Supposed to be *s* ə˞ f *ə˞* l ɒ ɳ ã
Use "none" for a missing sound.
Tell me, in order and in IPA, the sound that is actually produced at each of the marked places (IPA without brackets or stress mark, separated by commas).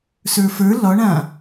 s, ə˞